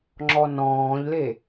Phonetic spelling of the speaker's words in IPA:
ŋ͡ǁ ɔ n ɔ̃ː ʎ l e

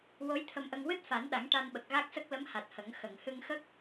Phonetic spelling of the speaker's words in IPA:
w o˧˥ j t̪ʰ ə˧ m ʔ ə˧ ŋ w ɨ˦˥ t̚ f a˨˩˦ n ɗ a˨˩˦ ŋ ʈ a˧ n ɓ ə˨˩ k̚ ɣ a˦˥ k̚ s ə˦˥ k̚ l ə˧˥ m h a˨˩ t̚ h ə˨˩˦ ŋ x ə˨˩˨ ŋ h ɨ˧ ŋ x ə˦˥ k̚

